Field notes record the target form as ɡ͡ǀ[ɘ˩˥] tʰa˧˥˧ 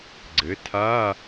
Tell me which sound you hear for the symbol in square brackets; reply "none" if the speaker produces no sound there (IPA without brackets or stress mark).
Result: ɘ˩˥